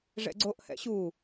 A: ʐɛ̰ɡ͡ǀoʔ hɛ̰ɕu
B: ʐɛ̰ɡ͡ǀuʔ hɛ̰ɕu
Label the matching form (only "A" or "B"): A